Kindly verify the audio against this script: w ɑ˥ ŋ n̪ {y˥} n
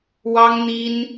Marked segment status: incorrect: i˥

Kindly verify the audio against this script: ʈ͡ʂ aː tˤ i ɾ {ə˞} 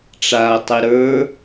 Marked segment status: correct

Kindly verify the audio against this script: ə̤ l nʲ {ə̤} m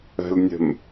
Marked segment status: correct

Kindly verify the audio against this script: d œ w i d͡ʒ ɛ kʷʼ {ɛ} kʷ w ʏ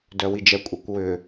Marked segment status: correct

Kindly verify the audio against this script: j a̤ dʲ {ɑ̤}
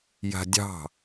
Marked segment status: correct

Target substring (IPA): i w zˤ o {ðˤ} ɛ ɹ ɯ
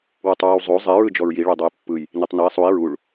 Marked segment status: incorrect: zˤ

